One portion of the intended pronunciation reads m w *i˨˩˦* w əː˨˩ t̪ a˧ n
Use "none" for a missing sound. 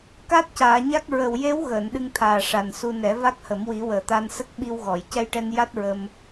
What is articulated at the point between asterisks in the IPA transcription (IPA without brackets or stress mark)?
i˨˩˦